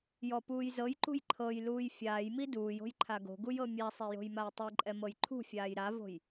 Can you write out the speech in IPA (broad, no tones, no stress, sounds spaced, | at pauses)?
j ɔ p uː j z ɤ j ǃ ṳ j ǃʰ ɤ j l uː j fʲ aː j m i d uː j o̤ j ǃʰ a ɡ o̤ ɡ u j ɤ mʲ a sˤ e j o̤ j m a j tˤ i ǃʼ ɛ m ɤ j ǃʰ ṳ fʲ aː j ɾ a v o̤ j